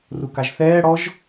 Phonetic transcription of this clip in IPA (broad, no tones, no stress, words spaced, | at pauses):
rukaʒθɛːɽɔʒ